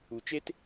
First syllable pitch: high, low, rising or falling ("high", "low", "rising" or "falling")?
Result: low